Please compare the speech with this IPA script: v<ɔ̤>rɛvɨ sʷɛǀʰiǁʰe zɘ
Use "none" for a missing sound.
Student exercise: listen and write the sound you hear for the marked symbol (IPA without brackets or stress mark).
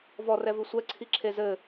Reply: ɔ